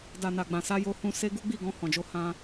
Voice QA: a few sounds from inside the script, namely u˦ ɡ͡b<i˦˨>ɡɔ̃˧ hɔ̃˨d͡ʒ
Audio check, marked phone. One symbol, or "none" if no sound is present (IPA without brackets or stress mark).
i˦˨